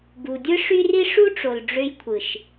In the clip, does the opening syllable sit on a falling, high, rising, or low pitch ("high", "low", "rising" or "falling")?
low